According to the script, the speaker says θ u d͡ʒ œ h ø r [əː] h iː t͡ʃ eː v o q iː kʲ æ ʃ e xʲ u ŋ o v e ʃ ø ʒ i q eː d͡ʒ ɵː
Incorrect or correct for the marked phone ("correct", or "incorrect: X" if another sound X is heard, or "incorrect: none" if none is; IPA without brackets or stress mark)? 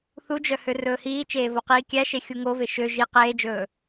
incorrect: ɵː